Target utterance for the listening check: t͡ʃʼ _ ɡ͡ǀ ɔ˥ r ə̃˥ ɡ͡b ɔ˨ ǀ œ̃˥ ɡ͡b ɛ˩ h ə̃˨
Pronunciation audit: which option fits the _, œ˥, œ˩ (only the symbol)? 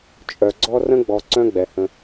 œ˩